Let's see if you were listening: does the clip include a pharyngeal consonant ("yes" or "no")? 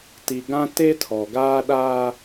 no